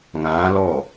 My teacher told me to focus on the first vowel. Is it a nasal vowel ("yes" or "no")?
yes